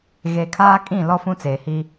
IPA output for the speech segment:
ɣe˨kʰaː˦kʼĩ˦˨ lɔ˦fũ˦t͡seː˨hi˦

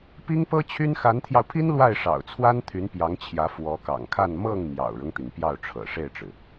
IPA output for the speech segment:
pi˥ŋpɤ˥t͡ɕʰy˥n xa˧˥nt̪ʰjɑ˧ʊ̯pʰi˥n lwa˥˩ɪ̯ʂɑ̰˨˩ʊ̯t͡sʰwa˥nt̪ʰy˧˥n pjɑ˧˥ŋt͡ɕʰjä˧˥ fwɔ˧˥kɑ̰˨˩ŋkʰa˥˧n mɤ˥˩ŋ mjɑ̰˨˩ʊ̯ɻʊ˦ŋt̪i˩ŋ pjɑ˥˩ʊ̯ʈ͡ʂʰɤ̰˨˩ʂe˥˩ɪ̯ʈ͡ʂɻ̩˩

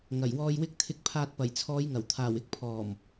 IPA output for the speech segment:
ŋɐ˨˩jwɔː˨jwɪ˧k̚ t̪ʰɪ˨˥k̚pʰaː˨t̚pɐ˨˩j t͡sʰɔː˨˧jŋɐ˨˩wt̪ʰaː˨˩wɪ˥k̚ pʰɔː˨˩m

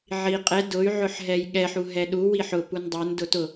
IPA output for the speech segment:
ʕi qʼɛ dʊy̯ ʕʊħɦɛjɠɛħ uɦɛɗu wiħʊ pundˤə˞n dʊtʊ

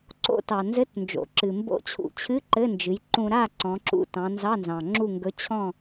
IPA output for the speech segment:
ǀo̰˧tɑ˩ nzɘ˧˥˧tnd͡ʒo̰˩˧ ǁɨ˩ mbo̰˧˥˧t͡ɕʰṵ˧t͡ɕʰɨ˧˥˧ ǃɘ˧˥˧nd͡ʒɨ˩˧j ǃũ˧ɾa˥˨ ǀɔ̃˩˧ǁṵ˧tɑ̃˩˧ nzɑ˧˥˧nzɑ̃˩ŋ͡ǁu˥˨ ŋɡɵ˧˥˧ t͡ɕʰɔ̃˥˨

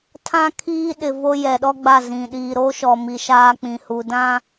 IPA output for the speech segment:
tʰã˦kʰiː˦ ɗɪ˨ vo˦jɛ˨ɗɔ˦ɡ͡ba˦˨ zĩ˨ ɗiː˨ɾo˦ʃɔ˨mi˨ ʃaː˦k͡pĩ˨ hu˨dã˦

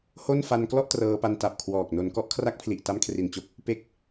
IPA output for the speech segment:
ho˥˩n fa˧nklɔ˥˩ʔ trɤː˧pa˧nta˨˩p̚kʰwɔː˨˩k̚ no˩˦nkɔ˦˥ʔkʰra˦˥k̚pʰli˨˩ʔ ta˦˥mkʰri˨˩nt͡ɕo˦˥k̚ | pe˥˩k̚

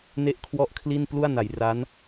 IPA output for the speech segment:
ne˥˩ʔkʰwɔ˥˩ʔkʰli˥˩n plu˥˩a̯na˩˦jra˦˥n

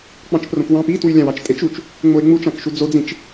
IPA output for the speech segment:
k͡pɑ̃t͡ʃprõkwɑ̃p itwy lʲɑ̃wɑt͡ʃtʼet͡ʃut͡ʃ | ŋ͡moe̯ŋ͡mut͡ʃɑ̃kʃu d͡zod͡zĩt͡ʃ

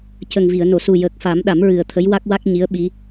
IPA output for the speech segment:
cə˨˩ŋvi˨˩˨ə̯no˨˩˨ su˨˩jəː˨˩k̚fa˨˩˦m ɗa˨˩˦mɹɨ˨˩ə̯t̪ʰə˧˥j wa˦˥k̚wa˦˥k̚ ɲi˧˥ə̯ɓi˧˥

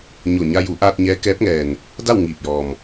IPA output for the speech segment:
ɲo˧˩ ɲa˧ju˩˧ʔaː˧t̚ ɲɛː˧˥kɛː˧˥p̚ŋɛː˩n | da˥˨wŋiː˧˩p̚jɔː˩m

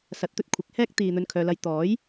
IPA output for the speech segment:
sɐ˨˥t̚t̪ɵ˨t̚ kʷʰɪ˨˥k̚hɛː˥k̚ t̪iː˨ n̪ɵ˧nkʰœː˨lɐ˧j t̪ɔː˨˥j

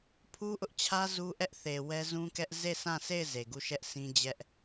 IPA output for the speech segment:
pʰu˦ʔʊ˦ʔt͡ɕʰä˦ zu˦ʔɛ˦ʔθe˨ wɛ˦zũ˦kɛ˦ʔ ze˦˨sã˦˨sʰe˦˨ɪ̯ ze˨ɡu˦˨ʃɛ˦ʔsʰĩ˦ d͡ʑɛ˦ʔ

